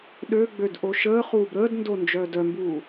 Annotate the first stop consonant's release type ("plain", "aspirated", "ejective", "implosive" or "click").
implosive